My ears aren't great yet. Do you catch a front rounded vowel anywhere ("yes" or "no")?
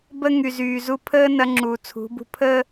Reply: yes